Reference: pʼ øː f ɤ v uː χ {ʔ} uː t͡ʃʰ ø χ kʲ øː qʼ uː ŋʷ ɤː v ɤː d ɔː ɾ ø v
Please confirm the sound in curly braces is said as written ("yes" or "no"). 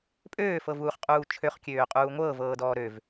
no